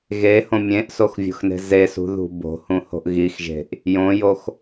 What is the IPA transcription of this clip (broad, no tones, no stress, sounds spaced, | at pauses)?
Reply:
ɣ e h õ mʲ ẽ ʔ s o x vʲ o̤ x n e̤ z e s ṳ ð ṳ b o̤ h ũ h o̤ ʔ ɣ i x ʒ e̤ ʔ | j õ j o x